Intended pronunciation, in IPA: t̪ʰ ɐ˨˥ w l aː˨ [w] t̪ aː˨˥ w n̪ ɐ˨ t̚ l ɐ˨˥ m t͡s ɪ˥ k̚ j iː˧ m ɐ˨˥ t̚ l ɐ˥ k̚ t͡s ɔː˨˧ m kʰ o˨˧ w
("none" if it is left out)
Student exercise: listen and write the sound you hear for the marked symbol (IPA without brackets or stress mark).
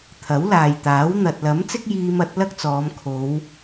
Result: j